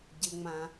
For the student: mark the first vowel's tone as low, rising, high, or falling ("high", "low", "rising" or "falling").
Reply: low